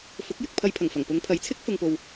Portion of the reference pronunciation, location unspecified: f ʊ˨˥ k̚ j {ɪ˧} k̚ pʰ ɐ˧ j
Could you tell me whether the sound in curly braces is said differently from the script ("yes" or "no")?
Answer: yes